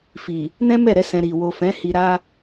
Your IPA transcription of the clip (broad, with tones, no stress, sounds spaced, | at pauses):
f i˨ | n ɛ̃˦ m ɛ˦˨ ɾ ɛ˨˦ s ɛ̃˧ ɾ i˨ w o˨ f ɛ̃˨˦ h i˧ ɾ a˦